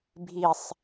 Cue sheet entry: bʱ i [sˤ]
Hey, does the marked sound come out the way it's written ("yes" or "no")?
yes